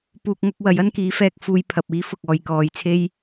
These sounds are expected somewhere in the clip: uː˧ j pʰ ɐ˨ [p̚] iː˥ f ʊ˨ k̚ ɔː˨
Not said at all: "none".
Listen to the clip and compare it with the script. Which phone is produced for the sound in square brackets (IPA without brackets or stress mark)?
p̚